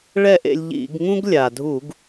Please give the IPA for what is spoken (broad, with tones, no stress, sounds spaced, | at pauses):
ɭ ɛ˥˩ ʔ ḛ˧ lʲ ʎ ḭ˧˩˧ ɡ ŋ ũ˥ ɡ lʲ a˩ dʱ u˧˩˧ ɡ